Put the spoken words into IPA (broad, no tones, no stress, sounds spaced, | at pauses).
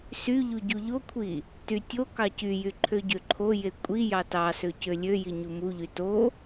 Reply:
s y ʎ u ɟ u ʎ o kʷʰ i | t y tʲ o k ɑ c y j y ǃʰ ø ɟ ø ǃʰ o j e kʷʼ i j ɑ t ɑ s ø c ø lʲ ø j i ɲ u m u ʎ y t o